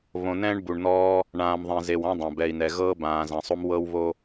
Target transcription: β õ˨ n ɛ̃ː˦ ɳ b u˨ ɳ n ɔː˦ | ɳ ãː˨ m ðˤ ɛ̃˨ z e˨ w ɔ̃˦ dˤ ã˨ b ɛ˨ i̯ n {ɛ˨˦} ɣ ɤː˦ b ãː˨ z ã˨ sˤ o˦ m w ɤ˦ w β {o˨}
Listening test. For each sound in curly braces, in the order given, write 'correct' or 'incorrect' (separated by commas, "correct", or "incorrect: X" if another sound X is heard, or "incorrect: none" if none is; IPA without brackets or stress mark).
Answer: incorrect: ɛ˨, incorrect: o˦